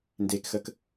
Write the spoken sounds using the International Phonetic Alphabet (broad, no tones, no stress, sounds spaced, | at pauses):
n d e k x ə k